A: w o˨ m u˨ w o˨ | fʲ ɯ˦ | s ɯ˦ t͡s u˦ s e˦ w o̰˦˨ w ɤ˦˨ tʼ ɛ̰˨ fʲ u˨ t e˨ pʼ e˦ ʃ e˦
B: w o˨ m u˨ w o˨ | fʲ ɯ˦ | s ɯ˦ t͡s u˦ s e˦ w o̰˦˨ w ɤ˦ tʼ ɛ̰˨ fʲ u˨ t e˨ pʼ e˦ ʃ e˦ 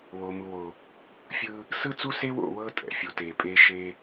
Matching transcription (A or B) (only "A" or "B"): B